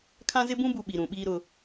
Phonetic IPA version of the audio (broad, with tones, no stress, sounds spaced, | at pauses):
kʰ ã˦ z ɪ˦ b ũ˦ b u˨ ɓ i˨ ɾ ũ˨ ɓ iː˦ ɾ ʊ˦